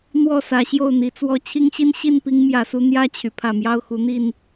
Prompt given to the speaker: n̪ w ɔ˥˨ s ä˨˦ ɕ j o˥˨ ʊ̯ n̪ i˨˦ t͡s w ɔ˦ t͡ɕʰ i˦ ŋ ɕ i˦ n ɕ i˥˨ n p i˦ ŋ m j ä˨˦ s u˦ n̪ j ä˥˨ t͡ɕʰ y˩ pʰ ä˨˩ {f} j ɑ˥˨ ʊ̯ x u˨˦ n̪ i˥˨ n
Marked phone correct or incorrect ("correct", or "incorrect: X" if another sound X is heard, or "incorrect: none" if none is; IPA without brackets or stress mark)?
incorrect: m